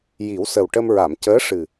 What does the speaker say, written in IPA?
j i˨˩˦ w s ə˨˩ w ʈ ə˧ m ɹ a˨˩˨ m c əː˧˥ ʂ ɨ˨˩

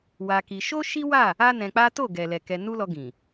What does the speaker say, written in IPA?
w a˧ k i˧ ʃ o˦ ʃ i˦ w a˦˨ | a˦ n ɛ̃˧ k͡p a˦ t o˦˨ ɡ ɛ˨ l ɛ˨ k ɛ˧ n u˦ l ɔ˧ ɡ ĩ˨

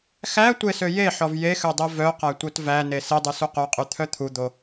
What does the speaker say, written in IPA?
x æ tʷ e s ø j e ħ ɔ v j e x ø dˤ i v œ q æ tʷ œ t v æ n e s i dˤ ʉ s u q œ qʼ y t̪ʰ œ t̪ʰ u d̪ o

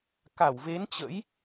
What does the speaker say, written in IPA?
k a˧˩ w v e˨˦ n t͡ɕ ə̰˧˥ j

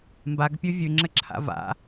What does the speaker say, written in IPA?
m b a ɡ pʲ ʉ vʲ ʉ ŋ͡ǁ ɘ ǁʰ a̰ v a̰

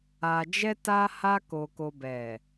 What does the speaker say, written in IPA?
a˧ d͡ʒ ɛ˦ t a˧ h a˧ k o˧ k o˧ b ɛ˨

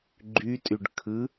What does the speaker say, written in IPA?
ɡ͡ǃ y tʼ y ɖ kʰ ɯ

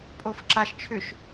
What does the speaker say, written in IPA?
pʼ o f ǁ a ʃ t͡ʃʰ ʏ ʃ

